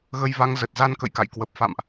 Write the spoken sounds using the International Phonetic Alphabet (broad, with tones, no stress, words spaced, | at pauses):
ɣə˧jva˨˦ŋ zə˨˩t̚za˧nkə̰˧˨jka̰˧˨j kwə˨˩p̚fa̰˧˨mʔ